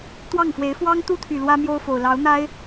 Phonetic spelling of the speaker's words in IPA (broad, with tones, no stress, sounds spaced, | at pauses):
t̪ w ɑ˥˩ ŋ f w e˧˥ ɪ̯ f w ɑ˥ ŋ t̪ u˥ t̪ʰ y˨˩ l w ä˥ m j o˥ ʊ̯ f o˨˩ ʊ̯ l ɑ˧˥ ʊ̯ n̪ a˥ ɪ̯